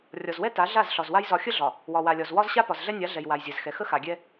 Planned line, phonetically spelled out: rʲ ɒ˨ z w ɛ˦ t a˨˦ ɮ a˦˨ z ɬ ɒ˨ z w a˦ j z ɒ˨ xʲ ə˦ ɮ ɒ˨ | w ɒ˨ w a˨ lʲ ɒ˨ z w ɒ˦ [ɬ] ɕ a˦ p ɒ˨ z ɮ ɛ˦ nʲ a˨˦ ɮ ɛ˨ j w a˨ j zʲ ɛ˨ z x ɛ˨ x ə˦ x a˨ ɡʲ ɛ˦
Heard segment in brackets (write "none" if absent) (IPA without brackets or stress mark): z